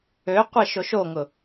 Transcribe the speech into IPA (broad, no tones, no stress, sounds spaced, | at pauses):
ø qʷ i ʃ o ʃ o ŋ ʊ